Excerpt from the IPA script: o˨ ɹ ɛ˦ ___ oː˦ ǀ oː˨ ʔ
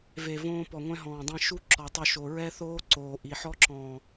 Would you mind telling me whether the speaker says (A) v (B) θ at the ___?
B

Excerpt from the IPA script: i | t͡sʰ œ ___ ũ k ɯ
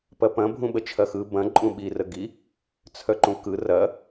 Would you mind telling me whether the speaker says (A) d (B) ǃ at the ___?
B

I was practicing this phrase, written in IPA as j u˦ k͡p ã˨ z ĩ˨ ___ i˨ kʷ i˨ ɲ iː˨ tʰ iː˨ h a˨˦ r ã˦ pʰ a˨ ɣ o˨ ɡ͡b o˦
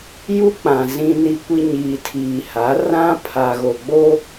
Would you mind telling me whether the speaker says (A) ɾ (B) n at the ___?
B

